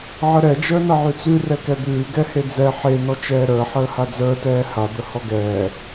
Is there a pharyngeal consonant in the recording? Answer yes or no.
yes